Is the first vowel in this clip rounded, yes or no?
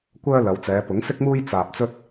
yes